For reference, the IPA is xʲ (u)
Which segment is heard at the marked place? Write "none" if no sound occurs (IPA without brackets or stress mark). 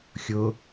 ʊ